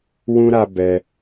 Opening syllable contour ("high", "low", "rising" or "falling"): high